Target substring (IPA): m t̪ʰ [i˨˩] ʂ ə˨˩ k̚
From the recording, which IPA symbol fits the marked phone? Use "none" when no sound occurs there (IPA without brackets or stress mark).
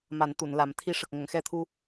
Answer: i˧˥